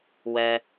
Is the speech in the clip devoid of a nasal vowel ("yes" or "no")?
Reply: yes